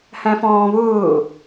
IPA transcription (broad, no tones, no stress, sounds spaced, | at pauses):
h æ̃ f ɔ̃ː β ʊː